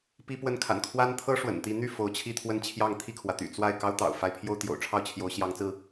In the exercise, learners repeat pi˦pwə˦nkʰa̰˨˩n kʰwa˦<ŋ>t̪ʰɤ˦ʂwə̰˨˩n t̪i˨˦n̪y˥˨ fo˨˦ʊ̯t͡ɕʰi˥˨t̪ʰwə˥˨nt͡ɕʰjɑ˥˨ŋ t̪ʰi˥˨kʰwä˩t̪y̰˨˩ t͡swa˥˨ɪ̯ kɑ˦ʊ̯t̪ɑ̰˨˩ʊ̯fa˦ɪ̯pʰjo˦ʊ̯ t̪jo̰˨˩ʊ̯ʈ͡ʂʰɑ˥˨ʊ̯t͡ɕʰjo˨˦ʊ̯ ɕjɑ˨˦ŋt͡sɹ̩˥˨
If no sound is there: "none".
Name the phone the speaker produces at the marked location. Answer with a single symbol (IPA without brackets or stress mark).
n